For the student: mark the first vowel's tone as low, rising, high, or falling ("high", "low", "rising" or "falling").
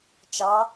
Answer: rising